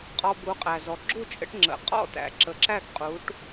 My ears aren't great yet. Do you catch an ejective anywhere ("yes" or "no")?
yes